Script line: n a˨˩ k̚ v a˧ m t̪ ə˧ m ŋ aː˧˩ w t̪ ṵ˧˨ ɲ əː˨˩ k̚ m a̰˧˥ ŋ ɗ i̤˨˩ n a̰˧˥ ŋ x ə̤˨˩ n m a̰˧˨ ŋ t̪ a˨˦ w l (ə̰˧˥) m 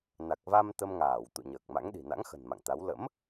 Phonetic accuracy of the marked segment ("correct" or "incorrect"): correct